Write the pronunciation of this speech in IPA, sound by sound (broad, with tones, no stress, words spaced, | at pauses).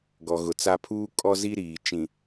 ɡɔ˨ɣʊ˨t͡sa˦ pʰuː˦kʼɔ˦zi˦ ɾiː˨ t͡ʃĩ˨